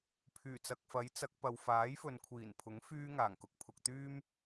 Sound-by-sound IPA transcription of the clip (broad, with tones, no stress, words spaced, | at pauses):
pʰyː˨˩t͡sɐ˨k̚fɐ˨˥j t͡sɐ˨˥k̚pɐ˨w faː˨˥jfɵ˨nkʷʰiː˨˩npʰʊ˨˥ŋ fyː˧ ŋaː˨˩ŋkʊ˧k̚pʰʊ˧k̚ t̪yː˥m